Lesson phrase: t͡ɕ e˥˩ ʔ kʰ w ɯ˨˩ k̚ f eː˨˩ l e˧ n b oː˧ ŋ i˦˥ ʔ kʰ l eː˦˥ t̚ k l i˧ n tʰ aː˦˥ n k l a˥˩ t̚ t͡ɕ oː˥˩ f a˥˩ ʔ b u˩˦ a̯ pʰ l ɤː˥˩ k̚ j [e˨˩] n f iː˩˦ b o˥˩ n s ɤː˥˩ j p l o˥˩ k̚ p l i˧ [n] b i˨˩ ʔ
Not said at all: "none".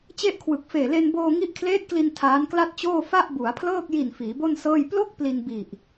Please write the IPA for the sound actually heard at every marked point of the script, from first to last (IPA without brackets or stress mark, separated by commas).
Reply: i˨˩, n